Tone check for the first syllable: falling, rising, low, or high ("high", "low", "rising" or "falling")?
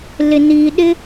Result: low